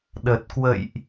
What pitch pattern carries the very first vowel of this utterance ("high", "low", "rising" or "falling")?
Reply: low